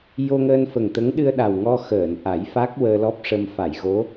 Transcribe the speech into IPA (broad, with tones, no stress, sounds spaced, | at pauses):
j o˧ ŋ əː˧ n f ə˨˩ ŋ t̪ ə˧˥ ŋ ɗ ɨ˧ ə̯ ɗ a˨˩ w ŋ ɔ˧ x əː˨˩˨ n ʔ a˨˩˦ j f a˦˥ k̚ w əː˧ l ɔ˦˥ p̚ ʂ ə˧ m f a˨˩˨ j ɣ o˧˥